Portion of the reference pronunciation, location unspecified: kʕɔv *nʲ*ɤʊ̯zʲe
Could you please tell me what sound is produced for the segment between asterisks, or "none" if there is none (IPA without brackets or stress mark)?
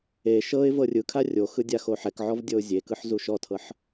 dʲ